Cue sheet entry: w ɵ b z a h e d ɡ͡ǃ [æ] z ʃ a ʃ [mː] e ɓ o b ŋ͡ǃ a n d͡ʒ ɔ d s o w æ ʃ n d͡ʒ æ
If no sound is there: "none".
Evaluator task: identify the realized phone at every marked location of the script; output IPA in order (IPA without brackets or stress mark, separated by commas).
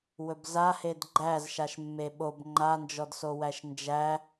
æ, mː